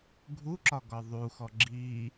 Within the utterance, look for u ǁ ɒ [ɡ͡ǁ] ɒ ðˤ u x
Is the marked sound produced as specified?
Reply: no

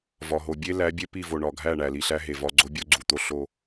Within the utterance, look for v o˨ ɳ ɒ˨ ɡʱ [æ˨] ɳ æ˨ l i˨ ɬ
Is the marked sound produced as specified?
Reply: no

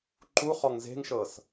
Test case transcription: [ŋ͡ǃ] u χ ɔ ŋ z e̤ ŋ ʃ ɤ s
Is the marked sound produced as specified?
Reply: no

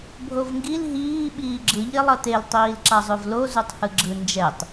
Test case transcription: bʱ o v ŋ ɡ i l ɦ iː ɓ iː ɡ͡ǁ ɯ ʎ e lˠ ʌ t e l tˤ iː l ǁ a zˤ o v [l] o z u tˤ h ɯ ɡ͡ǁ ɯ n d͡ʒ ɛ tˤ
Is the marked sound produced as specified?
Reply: yes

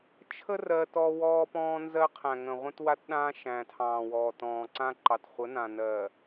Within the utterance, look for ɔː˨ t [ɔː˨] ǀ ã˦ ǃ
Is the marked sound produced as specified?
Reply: no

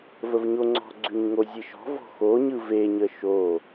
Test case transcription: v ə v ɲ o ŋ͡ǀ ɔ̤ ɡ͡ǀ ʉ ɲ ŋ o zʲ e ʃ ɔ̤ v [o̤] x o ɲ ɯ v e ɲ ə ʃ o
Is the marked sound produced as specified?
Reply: no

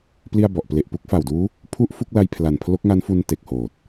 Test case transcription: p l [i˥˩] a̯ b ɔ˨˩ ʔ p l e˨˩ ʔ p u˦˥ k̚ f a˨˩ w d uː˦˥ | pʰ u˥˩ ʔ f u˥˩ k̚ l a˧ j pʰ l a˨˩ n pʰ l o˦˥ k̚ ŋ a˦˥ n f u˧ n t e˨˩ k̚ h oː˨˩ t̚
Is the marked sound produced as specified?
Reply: yes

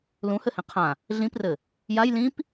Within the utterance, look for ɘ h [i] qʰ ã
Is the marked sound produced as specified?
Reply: no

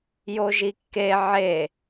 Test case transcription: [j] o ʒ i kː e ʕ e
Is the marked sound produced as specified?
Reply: yes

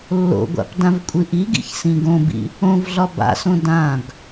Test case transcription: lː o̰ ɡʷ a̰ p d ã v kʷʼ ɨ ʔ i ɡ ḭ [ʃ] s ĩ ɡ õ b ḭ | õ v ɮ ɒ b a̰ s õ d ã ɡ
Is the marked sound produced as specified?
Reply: no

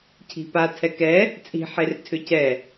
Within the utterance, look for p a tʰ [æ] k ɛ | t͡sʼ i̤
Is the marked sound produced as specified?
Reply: no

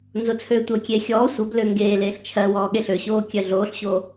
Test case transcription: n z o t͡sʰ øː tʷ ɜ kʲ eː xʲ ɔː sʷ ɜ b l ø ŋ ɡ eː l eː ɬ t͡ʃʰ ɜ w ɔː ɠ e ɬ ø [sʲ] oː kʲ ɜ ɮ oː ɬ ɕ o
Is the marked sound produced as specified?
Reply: no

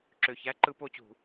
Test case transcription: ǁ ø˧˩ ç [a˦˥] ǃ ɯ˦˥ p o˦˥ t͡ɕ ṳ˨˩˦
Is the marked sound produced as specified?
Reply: no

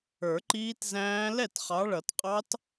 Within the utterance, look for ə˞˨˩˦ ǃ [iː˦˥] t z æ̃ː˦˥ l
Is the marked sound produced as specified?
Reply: yes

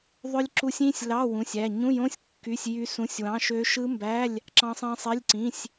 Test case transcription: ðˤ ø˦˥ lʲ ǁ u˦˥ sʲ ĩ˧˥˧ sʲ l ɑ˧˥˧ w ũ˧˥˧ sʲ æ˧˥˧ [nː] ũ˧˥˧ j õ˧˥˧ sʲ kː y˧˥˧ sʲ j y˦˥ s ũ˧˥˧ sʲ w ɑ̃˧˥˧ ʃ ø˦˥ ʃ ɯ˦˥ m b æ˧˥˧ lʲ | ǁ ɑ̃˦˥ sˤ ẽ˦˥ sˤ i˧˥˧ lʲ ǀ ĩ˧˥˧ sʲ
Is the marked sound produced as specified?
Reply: no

